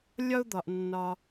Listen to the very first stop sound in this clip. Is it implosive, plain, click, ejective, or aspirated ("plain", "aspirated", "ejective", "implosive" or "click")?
plain